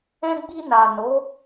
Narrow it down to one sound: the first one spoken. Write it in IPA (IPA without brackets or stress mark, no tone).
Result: ɛ̃